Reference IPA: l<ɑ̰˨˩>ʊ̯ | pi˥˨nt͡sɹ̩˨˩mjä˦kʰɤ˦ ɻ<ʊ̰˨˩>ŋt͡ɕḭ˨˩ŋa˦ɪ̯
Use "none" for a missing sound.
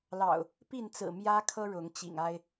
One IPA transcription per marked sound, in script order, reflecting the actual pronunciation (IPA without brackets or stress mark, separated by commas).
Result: ɑ̰˨˩, ʊ˨˦